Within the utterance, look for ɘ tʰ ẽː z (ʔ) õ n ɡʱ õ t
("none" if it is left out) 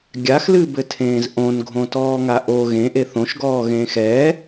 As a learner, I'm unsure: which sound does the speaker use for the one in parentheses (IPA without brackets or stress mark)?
ʔ